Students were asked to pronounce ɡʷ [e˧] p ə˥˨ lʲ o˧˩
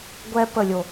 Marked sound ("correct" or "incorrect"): incorrect